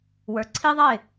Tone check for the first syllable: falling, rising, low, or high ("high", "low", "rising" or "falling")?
low